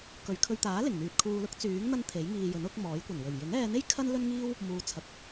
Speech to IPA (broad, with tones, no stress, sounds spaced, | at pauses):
k ɵ˨ ɥ kʰ ɵ˧ ɥ t̪ aː˨˥ l ɪ˨˩ ŋ n̪ yː˨ t̚ kʰ uː˧ l ʊ˥ k̚ t͡s yː˨˥ ŋ n̪ ɐ˥ n t̪ʰ e˨˥ j ŋ iː˧ j ɵ˨˥ n ʊ˨˥ k̚ m ɔː˨˥ j kʷ ɐ˨˩ n w ɵ˨˩ ɥ j ɪ˨˥ ŋ ɛː˧ n̪ e˥ j kʰ ɐ˥ n l ɵ˥ n ŋ iː˥ w | m uː˨˧ t͡sʰ ɐ˨ k̚